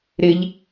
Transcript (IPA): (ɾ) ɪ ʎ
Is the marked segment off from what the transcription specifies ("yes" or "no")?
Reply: no